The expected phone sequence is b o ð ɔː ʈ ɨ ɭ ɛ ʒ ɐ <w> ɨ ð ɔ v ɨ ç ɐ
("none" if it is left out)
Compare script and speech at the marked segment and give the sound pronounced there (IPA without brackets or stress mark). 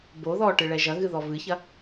ɣ